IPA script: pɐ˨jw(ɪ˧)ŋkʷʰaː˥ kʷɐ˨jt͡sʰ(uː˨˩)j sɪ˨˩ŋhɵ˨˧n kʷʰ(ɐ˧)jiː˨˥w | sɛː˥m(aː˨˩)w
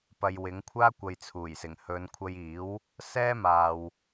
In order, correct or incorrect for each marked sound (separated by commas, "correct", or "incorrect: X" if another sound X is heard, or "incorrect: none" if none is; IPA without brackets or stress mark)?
incorrect: ɪ˨˥, correct, correct, incorrect: aː˨